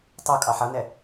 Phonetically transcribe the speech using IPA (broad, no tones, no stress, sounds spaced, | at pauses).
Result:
tˤ u kʼ ɑ ħ ʌ n ɛ